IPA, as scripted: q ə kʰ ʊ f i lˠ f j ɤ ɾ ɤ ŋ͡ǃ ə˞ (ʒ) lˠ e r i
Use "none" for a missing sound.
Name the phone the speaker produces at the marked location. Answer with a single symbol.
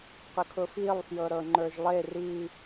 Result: ʒ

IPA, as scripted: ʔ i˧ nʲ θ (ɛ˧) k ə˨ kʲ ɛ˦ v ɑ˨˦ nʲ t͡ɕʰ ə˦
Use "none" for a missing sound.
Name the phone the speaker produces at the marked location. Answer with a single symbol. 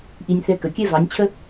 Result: ɛ˧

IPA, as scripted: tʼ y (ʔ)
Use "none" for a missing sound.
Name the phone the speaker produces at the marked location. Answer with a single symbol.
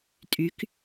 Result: k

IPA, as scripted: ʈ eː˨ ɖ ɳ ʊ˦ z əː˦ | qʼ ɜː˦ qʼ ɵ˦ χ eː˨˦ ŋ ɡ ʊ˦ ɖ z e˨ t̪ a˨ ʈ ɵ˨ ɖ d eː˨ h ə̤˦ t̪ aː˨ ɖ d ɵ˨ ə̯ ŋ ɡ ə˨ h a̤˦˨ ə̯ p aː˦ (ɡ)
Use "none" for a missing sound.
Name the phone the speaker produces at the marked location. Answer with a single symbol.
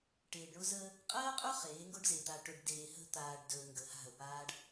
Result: ɖ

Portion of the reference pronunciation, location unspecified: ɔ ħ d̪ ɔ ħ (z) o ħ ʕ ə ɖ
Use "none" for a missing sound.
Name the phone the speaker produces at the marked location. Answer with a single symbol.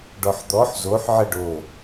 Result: z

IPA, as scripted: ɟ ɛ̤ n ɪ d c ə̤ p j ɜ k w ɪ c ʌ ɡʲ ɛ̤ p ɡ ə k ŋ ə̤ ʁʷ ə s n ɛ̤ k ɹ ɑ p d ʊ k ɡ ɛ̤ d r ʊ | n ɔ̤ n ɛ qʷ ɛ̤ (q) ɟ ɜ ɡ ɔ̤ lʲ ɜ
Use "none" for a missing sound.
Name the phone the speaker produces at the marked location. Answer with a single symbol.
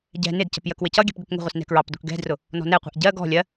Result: ʔ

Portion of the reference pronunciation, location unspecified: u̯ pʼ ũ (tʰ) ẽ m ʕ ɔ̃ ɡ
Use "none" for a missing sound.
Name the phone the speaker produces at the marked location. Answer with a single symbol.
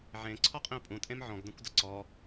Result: tʼ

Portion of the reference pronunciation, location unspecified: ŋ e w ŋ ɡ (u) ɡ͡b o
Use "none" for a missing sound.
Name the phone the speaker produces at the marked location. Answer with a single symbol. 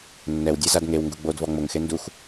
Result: u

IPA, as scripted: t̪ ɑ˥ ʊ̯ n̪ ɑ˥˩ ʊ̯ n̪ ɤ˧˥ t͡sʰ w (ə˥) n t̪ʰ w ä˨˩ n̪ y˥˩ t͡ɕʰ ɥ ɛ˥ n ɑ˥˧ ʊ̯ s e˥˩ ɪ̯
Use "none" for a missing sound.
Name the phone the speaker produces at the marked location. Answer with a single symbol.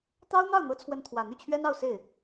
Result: ə˧˥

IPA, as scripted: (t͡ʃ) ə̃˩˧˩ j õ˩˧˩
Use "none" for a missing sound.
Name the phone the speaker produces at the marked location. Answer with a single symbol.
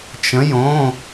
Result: t͡ʃ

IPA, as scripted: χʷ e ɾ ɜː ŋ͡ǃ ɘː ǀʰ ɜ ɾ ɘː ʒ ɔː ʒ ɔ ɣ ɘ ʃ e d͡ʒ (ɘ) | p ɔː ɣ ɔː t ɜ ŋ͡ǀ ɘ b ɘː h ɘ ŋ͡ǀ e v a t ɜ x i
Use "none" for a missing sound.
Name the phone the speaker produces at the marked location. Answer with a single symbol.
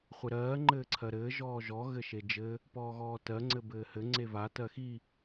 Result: ɘ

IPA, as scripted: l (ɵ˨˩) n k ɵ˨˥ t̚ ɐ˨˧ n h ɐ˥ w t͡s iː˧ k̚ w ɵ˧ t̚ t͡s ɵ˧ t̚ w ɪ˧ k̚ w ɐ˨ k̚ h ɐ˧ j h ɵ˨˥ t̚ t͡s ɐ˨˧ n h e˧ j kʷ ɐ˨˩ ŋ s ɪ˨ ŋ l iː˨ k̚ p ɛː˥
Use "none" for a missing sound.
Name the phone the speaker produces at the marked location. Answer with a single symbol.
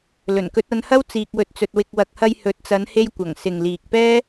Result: ɵ˨˩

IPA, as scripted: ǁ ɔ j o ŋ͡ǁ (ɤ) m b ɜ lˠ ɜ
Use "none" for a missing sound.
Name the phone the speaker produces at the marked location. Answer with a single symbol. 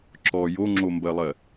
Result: o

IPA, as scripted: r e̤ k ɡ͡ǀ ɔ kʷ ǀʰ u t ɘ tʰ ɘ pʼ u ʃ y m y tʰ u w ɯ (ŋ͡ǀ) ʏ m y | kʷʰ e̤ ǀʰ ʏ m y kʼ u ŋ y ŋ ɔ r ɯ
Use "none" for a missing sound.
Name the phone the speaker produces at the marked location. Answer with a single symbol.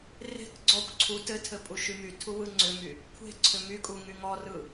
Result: ŋ͡ǀ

